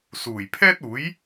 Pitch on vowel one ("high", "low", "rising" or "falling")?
low